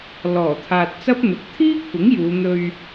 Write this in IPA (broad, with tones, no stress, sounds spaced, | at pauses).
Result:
l ɔː˨˩ t̪ʰ aː˨ t̚ t͡s ɐ˥ p̚ n̪ ʊ˨˥ k̚ t̪ʰ iː˥ kʷʰ ɪ˨˥ ŋ j uː˨˧ n̪ ɵ˧ ɥ